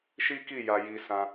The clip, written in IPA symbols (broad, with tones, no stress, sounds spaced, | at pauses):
ʃ i˦ k i˦˨ j a˧ j i˧ s ã˧